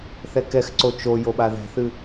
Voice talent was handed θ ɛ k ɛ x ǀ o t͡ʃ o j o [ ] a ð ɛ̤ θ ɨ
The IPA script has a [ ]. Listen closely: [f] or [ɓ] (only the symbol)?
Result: ɓ